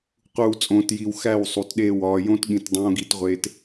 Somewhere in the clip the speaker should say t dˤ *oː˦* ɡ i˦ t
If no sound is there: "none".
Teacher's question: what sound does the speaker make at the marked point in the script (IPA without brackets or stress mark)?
õː˦